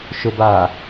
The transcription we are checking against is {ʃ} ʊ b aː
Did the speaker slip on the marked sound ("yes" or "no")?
no